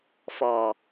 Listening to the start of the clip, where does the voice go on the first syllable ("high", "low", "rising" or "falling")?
low